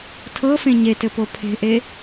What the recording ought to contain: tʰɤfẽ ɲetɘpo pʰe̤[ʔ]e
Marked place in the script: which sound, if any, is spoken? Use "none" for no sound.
ʔ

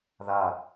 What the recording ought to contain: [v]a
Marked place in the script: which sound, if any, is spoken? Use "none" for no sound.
ð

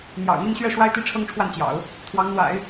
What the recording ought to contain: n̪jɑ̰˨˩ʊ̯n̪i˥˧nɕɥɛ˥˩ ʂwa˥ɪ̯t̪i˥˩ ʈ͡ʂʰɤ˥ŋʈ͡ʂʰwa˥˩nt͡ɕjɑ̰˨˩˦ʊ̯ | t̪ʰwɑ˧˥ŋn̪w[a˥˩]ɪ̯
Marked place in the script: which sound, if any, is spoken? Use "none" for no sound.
a̰˨˩˦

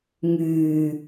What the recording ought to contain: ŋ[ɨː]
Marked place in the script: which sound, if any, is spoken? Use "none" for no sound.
yː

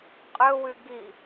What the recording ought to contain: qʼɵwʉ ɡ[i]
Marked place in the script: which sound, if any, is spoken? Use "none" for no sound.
i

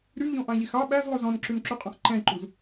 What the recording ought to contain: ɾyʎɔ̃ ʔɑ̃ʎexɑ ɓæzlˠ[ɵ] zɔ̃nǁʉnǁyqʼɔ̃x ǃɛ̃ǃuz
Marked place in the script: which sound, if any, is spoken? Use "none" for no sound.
ɵ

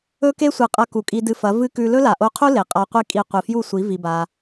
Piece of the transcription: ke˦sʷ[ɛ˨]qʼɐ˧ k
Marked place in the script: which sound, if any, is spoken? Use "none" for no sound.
ɨ˨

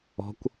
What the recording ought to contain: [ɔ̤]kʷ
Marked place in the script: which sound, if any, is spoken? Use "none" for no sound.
ɔ̤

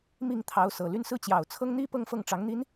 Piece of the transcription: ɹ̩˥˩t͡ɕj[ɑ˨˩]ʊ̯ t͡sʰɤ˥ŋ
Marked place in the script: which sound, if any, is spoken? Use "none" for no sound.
ɑ˨˩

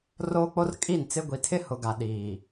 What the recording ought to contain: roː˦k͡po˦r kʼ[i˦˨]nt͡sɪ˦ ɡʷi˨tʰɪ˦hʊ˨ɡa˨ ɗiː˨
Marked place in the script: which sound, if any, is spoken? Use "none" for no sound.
i˦˨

